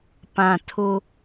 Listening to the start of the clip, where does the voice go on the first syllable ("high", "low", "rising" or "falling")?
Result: low